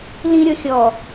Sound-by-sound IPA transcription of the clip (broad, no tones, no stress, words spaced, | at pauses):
lĩɾʲɔ xʲɔ